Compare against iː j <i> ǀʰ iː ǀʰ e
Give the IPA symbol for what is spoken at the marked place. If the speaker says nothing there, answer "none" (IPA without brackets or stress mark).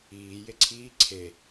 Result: e